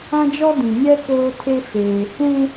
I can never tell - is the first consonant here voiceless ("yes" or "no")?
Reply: no